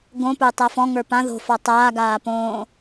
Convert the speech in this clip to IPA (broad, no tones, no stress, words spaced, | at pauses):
ɡõpə˞ tˤafɔ̃ŋə˞ pã ðo̤fɔ tˤaːɡaː põː